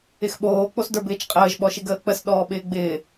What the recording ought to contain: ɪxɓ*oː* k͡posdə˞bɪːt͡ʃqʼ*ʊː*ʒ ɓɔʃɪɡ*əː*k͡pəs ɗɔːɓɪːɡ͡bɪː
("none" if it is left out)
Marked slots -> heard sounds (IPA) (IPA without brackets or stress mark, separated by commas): oː, əː, əː